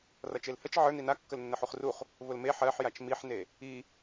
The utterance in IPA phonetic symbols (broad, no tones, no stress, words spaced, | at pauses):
rʌt͡ʃelhət͡ʃ ʕə˞ nina kːəlnːəħuχruχ | vʊlme ħɜħjat͡ʃ miħne | i